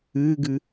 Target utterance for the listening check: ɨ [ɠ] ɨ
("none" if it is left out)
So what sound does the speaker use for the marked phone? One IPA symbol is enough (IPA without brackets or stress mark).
ɡ